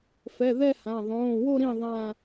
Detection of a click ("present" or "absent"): absent